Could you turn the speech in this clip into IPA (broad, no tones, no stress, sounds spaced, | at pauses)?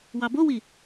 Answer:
w ɑ b o w i